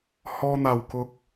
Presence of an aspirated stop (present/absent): absent